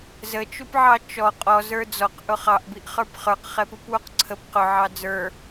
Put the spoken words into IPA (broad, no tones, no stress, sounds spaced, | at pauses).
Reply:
z ə t͡ʃ u p ʕ ɑ t͡ʃ ɔ qʼ ɔ z ə˞ d͡z ɔ q ʔ ʊ χ ɑ ʔ b i ʔ χ ə˞ p χ ə˞ q χ ɛ p u p w u q ǀʰ ə p q ʊ ʕ ɑ d͡z ə˞